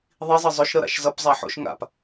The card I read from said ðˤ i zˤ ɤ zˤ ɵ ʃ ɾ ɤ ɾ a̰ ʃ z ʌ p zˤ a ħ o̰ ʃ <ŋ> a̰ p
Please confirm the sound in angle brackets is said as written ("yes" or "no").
yes